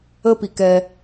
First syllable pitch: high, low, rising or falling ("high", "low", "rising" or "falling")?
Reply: high